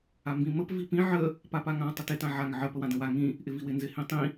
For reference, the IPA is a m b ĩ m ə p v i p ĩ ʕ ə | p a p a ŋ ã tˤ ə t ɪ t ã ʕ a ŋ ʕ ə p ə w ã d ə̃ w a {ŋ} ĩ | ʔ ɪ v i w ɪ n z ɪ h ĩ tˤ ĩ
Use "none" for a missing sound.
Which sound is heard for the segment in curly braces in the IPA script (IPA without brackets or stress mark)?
ŋ